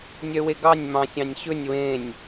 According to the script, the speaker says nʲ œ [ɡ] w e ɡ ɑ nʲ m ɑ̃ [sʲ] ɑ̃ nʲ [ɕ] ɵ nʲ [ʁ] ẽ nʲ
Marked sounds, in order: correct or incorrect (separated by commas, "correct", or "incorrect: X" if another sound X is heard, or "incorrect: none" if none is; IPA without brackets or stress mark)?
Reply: incorrect: none, correct, correct, incorrect: w